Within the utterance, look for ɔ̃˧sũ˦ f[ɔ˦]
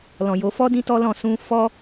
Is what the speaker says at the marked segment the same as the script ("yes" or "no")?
yes